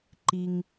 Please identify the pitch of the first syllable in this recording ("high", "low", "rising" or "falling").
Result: low